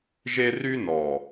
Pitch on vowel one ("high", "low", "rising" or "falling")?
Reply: high